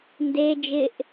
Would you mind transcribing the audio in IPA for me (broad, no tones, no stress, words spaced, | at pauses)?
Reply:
nde d͡ʒɪʔ